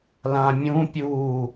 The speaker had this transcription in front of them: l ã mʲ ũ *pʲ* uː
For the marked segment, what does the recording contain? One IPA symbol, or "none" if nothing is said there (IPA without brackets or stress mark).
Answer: pʲ